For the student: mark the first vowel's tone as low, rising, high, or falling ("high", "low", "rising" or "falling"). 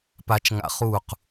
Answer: low